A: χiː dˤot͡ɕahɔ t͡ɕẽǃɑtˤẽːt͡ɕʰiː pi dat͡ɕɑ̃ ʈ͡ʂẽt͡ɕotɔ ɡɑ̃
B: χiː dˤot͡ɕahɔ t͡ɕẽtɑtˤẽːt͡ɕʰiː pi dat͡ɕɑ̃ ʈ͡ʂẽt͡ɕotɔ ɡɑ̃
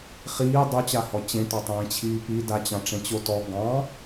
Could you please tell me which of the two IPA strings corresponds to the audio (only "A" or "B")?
B